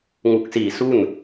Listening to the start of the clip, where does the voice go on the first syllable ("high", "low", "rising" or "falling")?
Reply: low